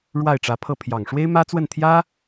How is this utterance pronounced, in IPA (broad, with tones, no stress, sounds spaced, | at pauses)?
ɻ w a˥˩ ɪ̯ ʈ͡ʂ ä˧˥ pʰ ɤ˥˩ pʰ j ɑ˨˩ ŋ ʂ w e˥ ɪ̯ m ä˥ t͡s w ə˥˩ n t̪ʰ j ä˥